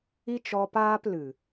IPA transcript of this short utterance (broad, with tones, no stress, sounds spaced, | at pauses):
i˦ t͡ʃ ɔ˧ p aː˦ p l ɨ˨